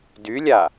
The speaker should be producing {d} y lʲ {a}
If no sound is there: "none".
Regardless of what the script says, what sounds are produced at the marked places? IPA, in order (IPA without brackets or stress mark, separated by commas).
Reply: d, a